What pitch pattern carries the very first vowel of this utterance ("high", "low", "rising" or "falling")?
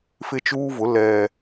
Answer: high